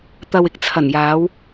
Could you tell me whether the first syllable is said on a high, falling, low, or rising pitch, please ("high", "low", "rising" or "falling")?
low